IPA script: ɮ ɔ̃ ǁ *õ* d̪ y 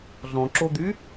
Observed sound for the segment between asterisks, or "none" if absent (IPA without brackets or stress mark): o